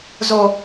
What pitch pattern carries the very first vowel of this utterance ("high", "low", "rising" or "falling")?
high